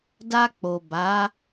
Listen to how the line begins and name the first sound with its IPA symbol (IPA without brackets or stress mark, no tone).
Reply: d